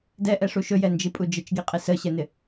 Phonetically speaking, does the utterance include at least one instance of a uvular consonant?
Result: yes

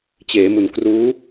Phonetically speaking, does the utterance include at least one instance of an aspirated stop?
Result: no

